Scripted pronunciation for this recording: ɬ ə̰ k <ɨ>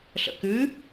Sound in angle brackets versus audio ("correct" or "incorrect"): correct